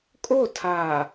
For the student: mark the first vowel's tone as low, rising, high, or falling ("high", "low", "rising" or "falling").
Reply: falling